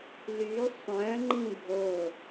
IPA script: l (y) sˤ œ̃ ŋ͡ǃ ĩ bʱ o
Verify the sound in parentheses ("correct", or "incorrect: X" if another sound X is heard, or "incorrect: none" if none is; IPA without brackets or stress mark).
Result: correct